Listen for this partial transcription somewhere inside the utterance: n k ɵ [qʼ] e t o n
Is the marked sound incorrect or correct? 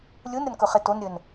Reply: incorrect